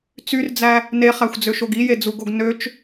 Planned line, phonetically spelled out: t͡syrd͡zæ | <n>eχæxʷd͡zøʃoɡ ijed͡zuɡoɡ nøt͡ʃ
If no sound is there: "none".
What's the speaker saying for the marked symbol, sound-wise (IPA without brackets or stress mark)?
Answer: n